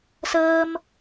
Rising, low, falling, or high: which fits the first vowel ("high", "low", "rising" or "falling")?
high